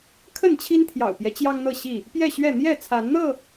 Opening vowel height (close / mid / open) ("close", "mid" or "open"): mid